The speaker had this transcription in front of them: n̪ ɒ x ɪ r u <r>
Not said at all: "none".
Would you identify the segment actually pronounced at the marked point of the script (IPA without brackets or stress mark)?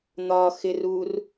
r